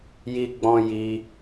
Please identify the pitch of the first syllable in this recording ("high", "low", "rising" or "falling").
high